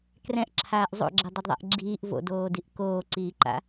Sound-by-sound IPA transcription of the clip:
krɛ̃ʔǁʰaːʔ zˤo̰ɡ͡ǁɛdˤedðˤa̰ʔ ɡ͡ǁiːʔ vo̰doːdiʔ koːǀiːǃa̰

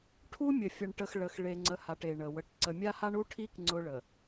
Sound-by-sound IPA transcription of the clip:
ʈʰu˦mʲə˨ fʲə˨ɳʈə˨x ɭə˨x ɭe˨ŋ͡ǀə˨ha˨ʈ e˨ɳə˨ wə˨ʈ ǀə˨ mʲa˦ha˦ɳu˦ʈʰi˦k ŋ͡ǀʊ˦ɭə˨

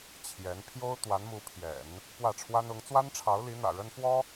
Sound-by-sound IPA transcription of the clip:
t͡ɕʰjɛ˧˥n pʰjo˥ʊ̯t̪wa˧˥nmu˧˥pʰjɛ̰˨˩˦n | pwä˥˩ʈ͡ʂʰwa˥nʊ˧˥ŋ t͡swa˥nʈ͡ʂʰɑ˧˥ʊ̯li˧˥n̪ä̰˨˩ ɻə˥nfwɔ˥

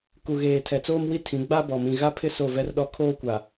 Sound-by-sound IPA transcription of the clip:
ku˨ɣeː˨ tʰɛ˨t͡soː˦mwi˦ tʰĩ˨˦ɡ͡ba˦bɔ˨ mĩ˨ɣa˦pʰɪ˦ so˦˨vɛ˦rɗɔ˦ kʰoː˦kʷa˨

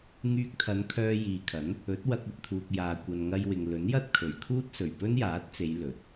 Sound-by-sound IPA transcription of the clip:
ŋyː˧k̚t̪ʰɐ˨˧n kʰœː˧jiː˨kʰɐ˨˥n | ɵ˨˥t̚wɐ˧k̚ ɵ˨t̚t̪ʰuː˨k̚ jaː˨ kʷɐ˨nŋɐ˧jwɪ˨ŋ lɵ˨˥njɐ˥t̚ kʰɵ˨ɥkʰuː˥t̚ sɵ˨˩ɥpɵ˥njaː˨˥t̚t͡se˨˧j lɵ˨˥t̚

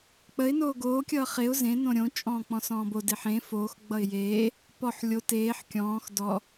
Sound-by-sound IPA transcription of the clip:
k͡pəɪ̯ noːɡoː kʲʌːχeʊ̯ zẽ nõɾʲõ t͡ʃʼɔ̃ːk͡pɔ̃sɔ̃ːbo deħẽ foːx ɡ͡bʌɪ̯jeː | pɔħ lʲo teːħ kʲɔ̃ːx dɔ

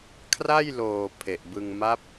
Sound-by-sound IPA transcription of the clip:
kʰra˥˩jloː˨˩ pʰe˨˩ʔbɯ˧ŋ ma˦˥p̚

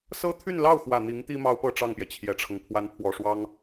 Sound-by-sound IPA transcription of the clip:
sɤ˥t̪ʰy˥˧nlɑ˥˩ʊ̯xwä˨˩ n̪i˧˥ŋt̪i˥ mɑ˥ʊ̯pɤ˥˧ ʈ͡ʂɑ˥˩ŋpjɛ˩t͡ɕʰjɛ˨˩ʈ͡ʂʰɤ˦ŋ pʰwa˧˥npʰwɔ˨˩ʂwɑ˥ŋ

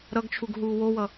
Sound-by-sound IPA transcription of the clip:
ɾʌɡt͡ʃʰuɡ ɦuːwowʌ

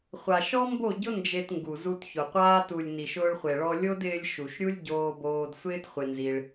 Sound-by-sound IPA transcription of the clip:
χʷa˨ ʃɔ˦mbo˦˨ɟʊ˦ nd͡ʒe˧tŋɡu˨zu˧tçʊ˨ qʷaː˧tu˨lʲ ni˨ʃʊː˧ɭχʷe˨ɭɔ˧ lʲo˦dɪː˧lʲ ʃu˨ʃɾʲu˦lʲ ɟoː˧boː˧d sʷɪː˦tχʷɪ˧nzi˧ɭ

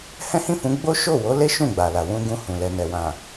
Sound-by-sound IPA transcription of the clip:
hɛ̃˦hĩ˦˨fũ˨˦ ɡ͡bo˦ʃo˦˨ wo˨˦le˦ ʃũ˦˨ɡ͡ba˨la˨ wũ˧ ɡũ˧hũ˨lɛ˨nɛ˨ wã˨

